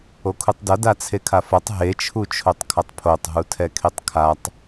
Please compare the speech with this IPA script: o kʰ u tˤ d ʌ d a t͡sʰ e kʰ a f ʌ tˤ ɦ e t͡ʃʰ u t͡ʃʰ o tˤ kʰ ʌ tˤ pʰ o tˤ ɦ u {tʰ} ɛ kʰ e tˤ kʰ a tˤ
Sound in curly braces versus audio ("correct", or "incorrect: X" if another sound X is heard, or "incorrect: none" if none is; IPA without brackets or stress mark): correct